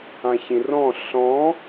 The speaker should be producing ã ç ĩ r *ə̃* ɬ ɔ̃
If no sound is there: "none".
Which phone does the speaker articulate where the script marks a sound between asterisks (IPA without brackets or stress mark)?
ɔ̃